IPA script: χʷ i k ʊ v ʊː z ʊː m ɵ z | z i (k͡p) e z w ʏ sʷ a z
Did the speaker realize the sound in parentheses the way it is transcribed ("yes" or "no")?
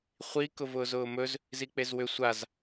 yes